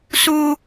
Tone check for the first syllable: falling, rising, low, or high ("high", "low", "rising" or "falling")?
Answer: high